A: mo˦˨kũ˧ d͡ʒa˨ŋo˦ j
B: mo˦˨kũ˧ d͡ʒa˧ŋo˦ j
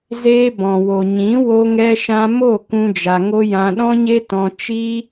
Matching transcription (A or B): B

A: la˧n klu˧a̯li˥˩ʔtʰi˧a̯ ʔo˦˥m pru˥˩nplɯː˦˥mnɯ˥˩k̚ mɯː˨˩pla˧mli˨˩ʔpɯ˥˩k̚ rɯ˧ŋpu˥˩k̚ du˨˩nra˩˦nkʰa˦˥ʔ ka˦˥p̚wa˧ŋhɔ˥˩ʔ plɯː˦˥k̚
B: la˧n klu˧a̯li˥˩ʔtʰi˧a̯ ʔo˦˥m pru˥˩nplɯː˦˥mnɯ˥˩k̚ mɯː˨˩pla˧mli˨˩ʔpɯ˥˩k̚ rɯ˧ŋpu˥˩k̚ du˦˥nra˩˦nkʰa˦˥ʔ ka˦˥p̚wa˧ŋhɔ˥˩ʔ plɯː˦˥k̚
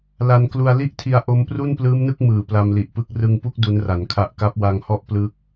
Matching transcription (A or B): B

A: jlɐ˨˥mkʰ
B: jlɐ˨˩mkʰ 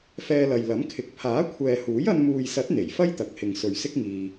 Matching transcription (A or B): A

